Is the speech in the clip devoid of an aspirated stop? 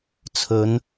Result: no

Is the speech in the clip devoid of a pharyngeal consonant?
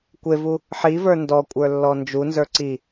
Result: no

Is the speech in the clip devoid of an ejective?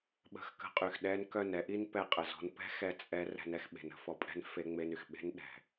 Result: no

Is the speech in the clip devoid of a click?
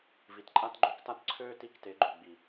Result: no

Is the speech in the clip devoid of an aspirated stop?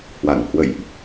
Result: yes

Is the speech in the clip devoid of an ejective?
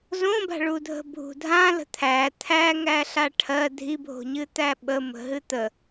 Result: yes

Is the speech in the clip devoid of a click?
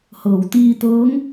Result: yes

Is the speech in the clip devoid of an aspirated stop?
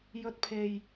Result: no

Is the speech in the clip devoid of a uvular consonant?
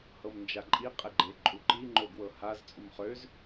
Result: no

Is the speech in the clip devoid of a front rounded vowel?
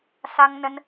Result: yes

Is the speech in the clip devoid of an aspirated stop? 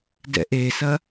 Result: yes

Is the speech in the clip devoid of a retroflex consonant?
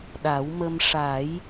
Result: no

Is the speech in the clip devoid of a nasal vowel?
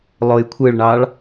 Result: yes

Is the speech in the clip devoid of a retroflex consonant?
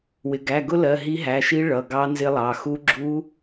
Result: no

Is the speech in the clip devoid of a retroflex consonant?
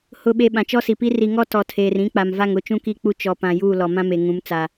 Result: yes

